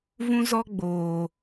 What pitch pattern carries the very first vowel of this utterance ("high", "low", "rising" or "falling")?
high